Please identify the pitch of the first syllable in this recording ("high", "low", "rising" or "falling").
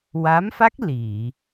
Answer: rising